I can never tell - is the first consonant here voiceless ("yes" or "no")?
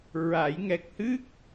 no